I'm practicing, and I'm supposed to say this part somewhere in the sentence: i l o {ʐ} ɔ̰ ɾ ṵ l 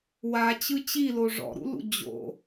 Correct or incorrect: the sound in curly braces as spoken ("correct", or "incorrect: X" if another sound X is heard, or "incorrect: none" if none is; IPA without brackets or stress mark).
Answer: correct